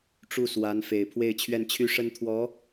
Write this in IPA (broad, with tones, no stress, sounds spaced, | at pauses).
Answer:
ʈ͡ʂ u˥˩ s w a˧˥ n f e˨˩ ɪ̯ pʰ w e˥˧ ɪ̯ t͡ɕʰ ɥ ɛ˥˩ n t͡ɕʰ y˥ ʂ ə˥ n t̪ʰ w ɔ˧˥